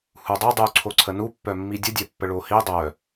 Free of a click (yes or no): no